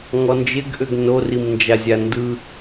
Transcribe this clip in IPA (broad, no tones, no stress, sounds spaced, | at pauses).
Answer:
ŋ ɔ n d͡ʒ ɪ ɡ ʔ ʏ ɡ n o r i m n d͡ʒ a zʲ a n d ɯ